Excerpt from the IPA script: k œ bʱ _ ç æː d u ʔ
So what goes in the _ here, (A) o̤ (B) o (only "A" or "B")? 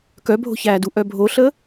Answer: A